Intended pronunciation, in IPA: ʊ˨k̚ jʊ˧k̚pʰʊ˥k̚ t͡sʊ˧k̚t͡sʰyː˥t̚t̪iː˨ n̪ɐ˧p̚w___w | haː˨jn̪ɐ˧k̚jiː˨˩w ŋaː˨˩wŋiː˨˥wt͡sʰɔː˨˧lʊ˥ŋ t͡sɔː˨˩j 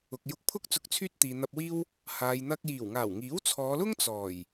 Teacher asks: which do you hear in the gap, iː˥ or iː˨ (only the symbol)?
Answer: iː˥